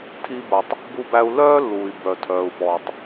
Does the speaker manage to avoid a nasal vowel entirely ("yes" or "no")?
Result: yes